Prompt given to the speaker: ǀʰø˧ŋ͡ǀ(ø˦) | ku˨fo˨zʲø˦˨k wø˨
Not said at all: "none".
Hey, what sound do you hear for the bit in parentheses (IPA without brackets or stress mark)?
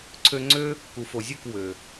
ø˦